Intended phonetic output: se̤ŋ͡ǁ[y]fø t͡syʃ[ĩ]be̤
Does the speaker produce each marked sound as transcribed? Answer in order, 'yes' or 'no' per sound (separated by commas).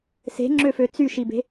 no, no